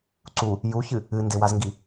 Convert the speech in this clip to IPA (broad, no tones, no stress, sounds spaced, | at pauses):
ǀ u | j u ç ɨ | ɨ n d ɪ w a z ŋ ɡ i